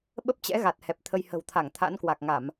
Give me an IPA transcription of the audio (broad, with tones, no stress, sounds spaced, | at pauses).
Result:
ɓ ə˦˥ p̚ t͡ɕ ɛ̰˧˥ ɣ a˨˩ t̚ h ɛ˨˩ p̚ t̪ʰ ə˧ j h ə̤˨˩ w t̪ʰ a˧˩ ŋ t̪ʰ a̰˧˥ n k w a˨˩ k̚ ŋ a˧˩˨ m